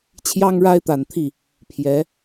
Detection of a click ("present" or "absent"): absent